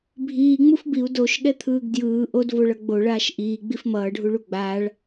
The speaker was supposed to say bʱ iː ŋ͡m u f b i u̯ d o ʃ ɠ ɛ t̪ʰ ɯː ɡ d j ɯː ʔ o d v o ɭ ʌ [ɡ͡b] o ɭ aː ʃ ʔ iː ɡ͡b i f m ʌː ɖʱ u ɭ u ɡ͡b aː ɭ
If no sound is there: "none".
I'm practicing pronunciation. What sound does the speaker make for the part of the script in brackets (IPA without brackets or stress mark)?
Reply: ɡ͡b